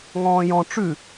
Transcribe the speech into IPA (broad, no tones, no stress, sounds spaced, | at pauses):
ŋ ɔ̃ː j ɔ̃ ʈ͡ʂ ʉ